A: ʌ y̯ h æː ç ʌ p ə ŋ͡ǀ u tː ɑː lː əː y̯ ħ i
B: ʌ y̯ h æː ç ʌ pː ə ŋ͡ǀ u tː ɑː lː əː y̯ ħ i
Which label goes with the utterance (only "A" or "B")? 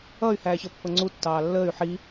B